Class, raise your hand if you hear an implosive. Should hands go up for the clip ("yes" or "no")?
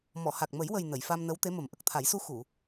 no